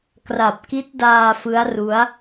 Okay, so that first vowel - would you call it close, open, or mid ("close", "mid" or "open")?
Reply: open